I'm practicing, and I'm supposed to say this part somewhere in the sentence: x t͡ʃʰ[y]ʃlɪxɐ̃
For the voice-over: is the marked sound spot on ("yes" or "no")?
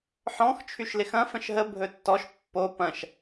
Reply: yes